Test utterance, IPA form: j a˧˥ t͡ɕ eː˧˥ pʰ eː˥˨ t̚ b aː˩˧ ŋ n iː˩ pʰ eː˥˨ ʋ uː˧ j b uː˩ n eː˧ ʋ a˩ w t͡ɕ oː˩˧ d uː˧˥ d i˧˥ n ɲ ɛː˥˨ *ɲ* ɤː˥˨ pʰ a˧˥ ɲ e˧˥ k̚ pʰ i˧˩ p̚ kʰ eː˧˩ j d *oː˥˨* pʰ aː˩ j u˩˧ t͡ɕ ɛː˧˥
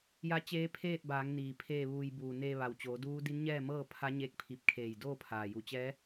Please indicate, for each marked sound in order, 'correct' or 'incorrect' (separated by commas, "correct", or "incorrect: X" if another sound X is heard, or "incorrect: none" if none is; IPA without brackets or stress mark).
incorrect: m, correct